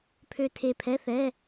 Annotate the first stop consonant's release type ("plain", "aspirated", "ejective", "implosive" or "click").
aspirated